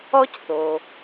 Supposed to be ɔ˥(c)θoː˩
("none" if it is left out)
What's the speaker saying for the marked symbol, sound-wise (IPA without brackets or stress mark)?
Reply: c